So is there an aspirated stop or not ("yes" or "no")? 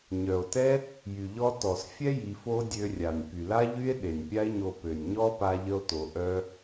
no